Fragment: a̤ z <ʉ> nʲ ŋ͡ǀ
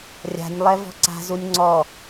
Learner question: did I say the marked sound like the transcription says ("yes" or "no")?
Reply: no